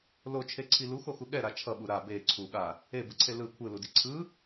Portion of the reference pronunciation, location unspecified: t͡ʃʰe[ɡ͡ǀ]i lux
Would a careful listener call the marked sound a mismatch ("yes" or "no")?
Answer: yes